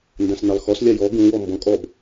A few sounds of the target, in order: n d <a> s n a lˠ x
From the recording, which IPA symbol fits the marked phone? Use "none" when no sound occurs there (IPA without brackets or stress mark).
ã